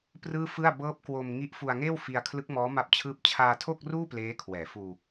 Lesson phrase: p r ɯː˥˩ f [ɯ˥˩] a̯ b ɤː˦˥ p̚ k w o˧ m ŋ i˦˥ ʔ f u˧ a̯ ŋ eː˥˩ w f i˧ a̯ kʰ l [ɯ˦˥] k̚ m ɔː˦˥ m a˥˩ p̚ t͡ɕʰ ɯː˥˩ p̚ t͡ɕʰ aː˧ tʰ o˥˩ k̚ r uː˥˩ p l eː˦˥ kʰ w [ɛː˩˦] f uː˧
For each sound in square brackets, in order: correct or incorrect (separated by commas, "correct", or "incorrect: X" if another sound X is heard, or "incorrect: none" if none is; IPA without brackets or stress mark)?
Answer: correct, correct, correct